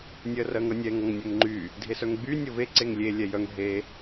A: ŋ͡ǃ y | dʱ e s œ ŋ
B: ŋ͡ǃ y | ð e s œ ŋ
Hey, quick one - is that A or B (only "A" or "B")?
A